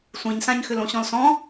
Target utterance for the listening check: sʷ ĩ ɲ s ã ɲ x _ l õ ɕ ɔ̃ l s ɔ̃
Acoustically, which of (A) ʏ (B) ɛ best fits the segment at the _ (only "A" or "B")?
A